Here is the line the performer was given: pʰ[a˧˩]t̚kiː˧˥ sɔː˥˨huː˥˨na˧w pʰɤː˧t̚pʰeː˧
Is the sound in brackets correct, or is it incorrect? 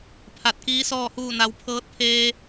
correct